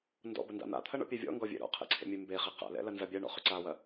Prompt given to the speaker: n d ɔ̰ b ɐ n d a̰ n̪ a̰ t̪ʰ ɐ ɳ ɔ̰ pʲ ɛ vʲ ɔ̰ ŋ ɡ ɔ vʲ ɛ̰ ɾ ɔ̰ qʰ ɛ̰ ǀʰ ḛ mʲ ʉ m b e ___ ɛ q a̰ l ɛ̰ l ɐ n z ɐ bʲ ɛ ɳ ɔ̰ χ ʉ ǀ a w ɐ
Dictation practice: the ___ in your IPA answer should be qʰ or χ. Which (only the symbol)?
χ